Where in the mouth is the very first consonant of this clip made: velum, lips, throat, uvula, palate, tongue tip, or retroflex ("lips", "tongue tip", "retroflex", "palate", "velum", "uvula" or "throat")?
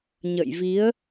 palate